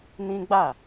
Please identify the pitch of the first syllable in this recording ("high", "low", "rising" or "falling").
high